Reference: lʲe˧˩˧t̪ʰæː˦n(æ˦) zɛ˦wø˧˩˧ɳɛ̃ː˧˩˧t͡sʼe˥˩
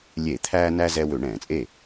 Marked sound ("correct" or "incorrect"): correct